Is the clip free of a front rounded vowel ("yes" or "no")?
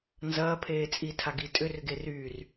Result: no